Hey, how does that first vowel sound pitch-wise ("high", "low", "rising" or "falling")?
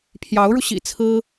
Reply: rising